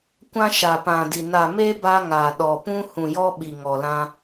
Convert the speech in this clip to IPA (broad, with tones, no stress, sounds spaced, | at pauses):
kʷ ã˦ ʃ a˨ p ã˨ d i˨ n a˨ m e˦ b a˦ ŋ a˨ ɗ ɔ˨ p ũ˦ h ũ˨ j ɔ˦ ɓ i˨ ŋ ɔ˨ l ã˦